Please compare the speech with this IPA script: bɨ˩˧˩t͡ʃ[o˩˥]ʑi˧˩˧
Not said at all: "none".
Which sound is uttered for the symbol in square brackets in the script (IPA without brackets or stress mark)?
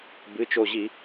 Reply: o˧˩